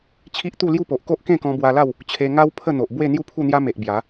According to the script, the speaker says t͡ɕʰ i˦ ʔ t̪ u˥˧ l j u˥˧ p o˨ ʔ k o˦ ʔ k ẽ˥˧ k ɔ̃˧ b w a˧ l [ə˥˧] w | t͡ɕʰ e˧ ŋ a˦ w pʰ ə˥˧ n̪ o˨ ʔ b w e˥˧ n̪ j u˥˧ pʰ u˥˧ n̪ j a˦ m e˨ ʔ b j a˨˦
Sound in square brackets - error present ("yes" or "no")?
yes